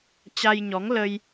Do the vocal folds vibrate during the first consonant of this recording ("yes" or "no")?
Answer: no